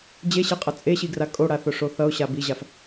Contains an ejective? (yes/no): yes